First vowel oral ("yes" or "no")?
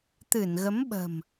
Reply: yes